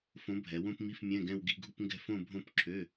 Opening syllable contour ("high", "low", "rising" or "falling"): rising